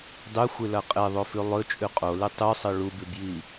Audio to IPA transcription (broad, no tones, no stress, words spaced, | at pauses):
dˤʉxʷɨlɐ qʼeðˤofʉ lˠɵt͡ʃʼʉ qʼolɨ tˤʉsˤɨ ɭubʉbji